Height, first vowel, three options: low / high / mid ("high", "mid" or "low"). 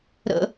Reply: mid